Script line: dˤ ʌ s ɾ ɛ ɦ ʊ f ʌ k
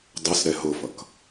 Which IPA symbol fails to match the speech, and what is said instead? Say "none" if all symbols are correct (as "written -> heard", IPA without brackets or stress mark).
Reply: none